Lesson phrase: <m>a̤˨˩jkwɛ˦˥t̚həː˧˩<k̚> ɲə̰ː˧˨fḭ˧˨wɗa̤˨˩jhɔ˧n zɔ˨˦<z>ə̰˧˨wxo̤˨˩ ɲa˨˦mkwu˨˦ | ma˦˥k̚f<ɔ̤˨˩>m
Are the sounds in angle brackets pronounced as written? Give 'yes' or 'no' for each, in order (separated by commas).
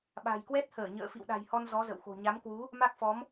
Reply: no, no, yes, no